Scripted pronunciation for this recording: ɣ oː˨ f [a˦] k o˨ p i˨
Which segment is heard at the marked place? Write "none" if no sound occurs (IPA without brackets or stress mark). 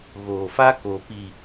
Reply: a˦